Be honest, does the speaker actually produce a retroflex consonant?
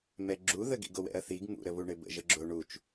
yes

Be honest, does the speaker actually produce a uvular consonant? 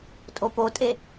no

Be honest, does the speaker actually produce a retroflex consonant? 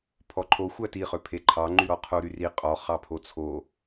no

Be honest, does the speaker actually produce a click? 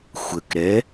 no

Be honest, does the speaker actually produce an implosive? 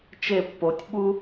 yes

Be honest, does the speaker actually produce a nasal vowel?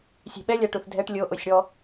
no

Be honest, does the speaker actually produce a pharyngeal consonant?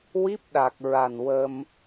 no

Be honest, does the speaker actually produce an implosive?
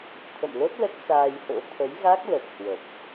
no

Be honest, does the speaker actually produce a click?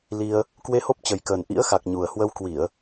no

